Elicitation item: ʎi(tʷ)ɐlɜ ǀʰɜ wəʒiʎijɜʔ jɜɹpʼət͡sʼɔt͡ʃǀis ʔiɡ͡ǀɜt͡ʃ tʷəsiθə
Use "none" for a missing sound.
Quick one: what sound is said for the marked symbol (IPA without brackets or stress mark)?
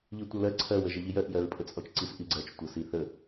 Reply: tʷ